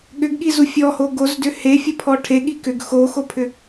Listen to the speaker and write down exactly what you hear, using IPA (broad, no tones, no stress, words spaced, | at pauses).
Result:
ɠʏɡɠizu fʲɔho ɡozdʏ hefʲɐpʰɔ ʈʰeɠi kʏɡ xoxopʰʏ